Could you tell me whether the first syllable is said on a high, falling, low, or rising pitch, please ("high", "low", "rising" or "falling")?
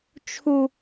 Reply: high